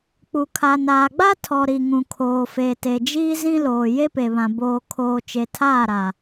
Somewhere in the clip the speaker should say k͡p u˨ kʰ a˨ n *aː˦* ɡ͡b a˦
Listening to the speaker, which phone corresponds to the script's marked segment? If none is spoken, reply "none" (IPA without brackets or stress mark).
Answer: aː˨